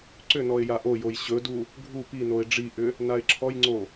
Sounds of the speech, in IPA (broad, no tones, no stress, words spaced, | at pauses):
ǀʏnɔɪ̯ jaʔojoj ɕɵdu | ɡʱu pinoɪ̯ ɖ͡ʐiʔʏ | naɪ̯ǁʰɔjŋ͡ǀo